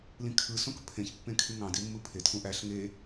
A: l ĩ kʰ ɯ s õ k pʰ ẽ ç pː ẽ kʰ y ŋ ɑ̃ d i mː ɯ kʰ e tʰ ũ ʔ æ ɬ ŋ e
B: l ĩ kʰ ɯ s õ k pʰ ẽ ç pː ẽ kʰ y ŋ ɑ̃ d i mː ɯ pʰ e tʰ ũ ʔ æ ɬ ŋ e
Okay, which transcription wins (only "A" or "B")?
B